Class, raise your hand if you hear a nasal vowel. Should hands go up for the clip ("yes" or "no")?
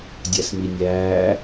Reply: no